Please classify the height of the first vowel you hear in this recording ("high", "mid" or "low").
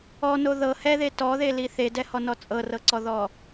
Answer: mid